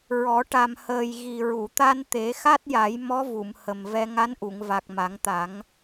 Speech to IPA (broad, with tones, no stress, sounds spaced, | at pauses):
ɹ ɔ˨˩˦ ʈ a˨˩ m h əː˨˩ j ɣ i˨˩ ɹ u˨˩˨ t̪ a˧ n t̪ e˨˩˦ x a˦˥ t̚ j a˨˩˦ j m ɔ˧˥ v u˨˩˨ m h ə˨˩ m v ɛ˧ ŋ a˧˥ n ʔ u˨˩˨ ŋ v a˨˩ k̚ m a˨˩˦ ŋ t̪ a˨˩˦ ŋ